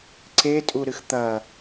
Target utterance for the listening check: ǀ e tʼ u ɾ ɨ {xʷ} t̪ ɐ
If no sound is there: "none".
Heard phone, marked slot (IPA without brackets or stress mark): x